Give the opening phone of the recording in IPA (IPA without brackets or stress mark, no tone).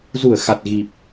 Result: z